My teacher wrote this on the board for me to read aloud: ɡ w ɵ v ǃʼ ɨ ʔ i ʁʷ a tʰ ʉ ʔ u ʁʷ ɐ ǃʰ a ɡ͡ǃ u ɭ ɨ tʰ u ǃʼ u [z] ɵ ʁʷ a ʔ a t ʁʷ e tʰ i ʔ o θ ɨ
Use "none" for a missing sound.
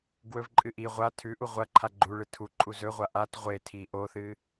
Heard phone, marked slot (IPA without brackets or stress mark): z